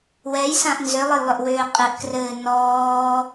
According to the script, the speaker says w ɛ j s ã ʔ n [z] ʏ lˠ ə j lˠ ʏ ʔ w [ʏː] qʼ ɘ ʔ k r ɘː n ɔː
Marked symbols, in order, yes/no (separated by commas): yes, yes